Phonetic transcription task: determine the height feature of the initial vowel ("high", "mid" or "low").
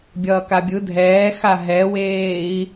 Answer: mid